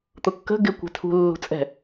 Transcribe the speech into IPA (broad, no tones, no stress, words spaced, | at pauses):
t̪ʊkːə̤ ɡɪ kʷɛ̤tʰṳ lːṳt͡sʼɛ̤